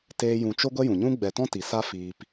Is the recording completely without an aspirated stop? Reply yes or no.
yes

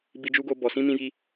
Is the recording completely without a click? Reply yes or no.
yes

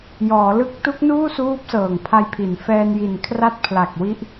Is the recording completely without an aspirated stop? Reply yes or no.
no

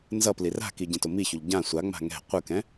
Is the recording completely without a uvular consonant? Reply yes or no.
no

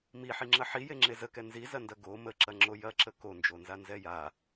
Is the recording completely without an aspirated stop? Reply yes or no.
yes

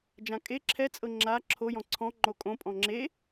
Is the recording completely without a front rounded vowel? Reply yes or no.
yes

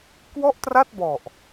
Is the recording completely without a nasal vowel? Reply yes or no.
yes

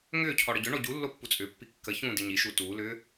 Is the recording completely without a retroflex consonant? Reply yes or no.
no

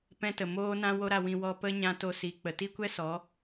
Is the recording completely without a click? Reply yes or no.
yes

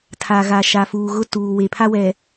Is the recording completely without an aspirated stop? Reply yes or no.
no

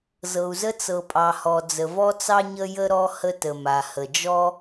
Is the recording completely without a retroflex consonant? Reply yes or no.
yes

